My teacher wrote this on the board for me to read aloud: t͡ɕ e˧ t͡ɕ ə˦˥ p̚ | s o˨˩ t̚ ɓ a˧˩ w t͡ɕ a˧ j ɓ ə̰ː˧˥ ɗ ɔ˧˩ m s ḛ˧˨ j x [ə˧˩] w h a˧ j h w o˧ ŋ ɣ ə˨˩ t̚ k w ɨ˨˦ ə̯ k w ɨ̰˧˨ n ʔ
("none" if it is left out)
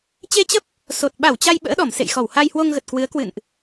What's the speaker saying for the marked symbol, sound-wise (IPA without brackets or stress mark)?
ɔ˧˩